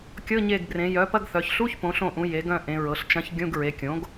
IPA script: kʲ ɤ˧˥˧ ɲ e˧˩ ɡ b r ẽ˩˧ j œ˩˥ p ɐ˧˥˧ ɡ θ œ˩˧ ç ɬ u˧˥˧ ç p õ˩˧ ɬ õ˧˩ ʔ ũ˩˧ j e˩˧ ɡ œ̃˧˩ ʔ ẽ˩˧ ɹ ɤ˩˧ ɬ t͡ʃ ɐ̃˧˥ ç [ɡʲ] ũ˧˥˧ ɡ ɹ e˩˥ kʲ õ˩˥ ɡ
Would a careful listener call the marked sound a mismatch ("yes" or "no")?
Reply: no